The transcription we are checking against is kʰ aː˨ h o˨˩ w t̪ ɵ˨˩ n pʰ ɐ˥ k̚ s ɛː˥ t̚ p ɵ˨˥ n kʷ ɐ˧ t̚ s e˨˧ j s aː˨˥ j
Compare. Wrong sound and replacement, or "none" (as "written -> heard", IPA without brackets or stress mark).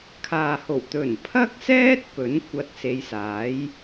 none